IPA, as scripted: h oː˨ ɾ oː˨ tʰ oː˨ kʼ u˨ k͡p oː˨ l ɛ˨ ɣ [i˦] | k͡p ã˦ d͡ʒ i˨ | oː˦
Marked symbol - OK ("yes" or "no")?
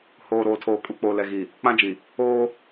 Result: no